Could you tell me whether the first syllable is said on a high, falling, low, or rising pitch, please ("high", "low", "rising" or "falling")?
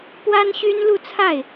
high